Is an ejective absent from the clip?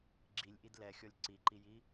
yes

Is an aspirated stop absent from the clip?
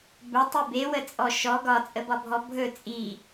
yes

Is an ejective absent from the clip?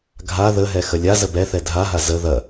yes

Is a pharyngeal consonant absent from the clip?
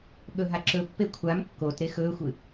yes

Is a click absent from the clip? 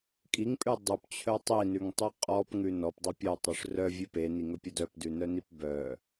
yes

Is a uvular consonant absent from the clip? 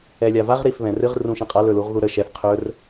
no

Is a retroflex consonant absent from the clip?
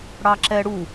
no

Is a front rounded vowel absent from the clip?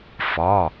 yes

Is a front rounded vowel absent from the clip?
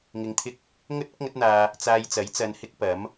yes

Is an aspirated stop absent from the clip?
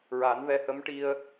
yes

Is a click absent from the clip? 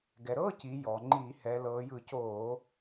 no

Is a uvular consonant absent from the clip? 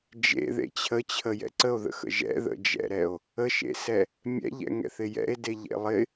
yes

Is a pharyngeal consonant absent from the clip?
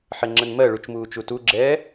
no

